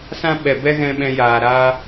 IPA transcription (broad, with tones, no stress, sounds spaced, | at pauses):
s ã˦ ɓ ɛ˨ b ɛ˦ ɣ ɛ̃˧ ɓ ɛ̃˧ j aː˨ ɾ aː˦